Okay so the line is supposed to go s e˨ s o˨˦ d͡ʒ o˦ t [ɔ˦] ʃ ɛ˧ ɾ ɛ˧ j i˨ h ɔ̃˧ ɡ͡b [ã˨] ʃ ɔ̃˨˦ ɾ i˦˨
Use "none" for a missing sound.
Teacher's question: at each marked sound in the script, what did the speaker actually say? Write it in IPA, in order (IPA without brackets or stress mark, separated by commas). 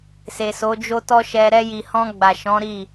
ɔ˦, a˨